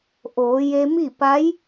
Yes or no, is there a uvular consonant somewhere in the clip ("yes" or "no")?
no